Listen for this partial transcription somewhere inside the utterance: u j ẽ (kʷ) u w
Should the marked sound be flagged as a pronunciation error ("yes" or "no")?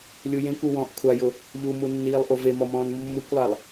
no